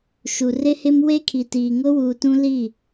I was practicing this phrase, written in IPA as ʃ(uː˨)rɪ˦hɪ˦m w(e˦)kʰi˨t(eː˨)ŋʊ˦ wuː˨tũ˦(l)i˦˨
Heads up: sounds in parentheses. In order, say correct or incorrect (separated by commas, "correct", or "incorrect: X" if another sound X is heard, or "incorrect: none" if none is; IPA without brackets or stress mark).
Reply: incorrect: u˨, correct, incorrect: iː˨, correct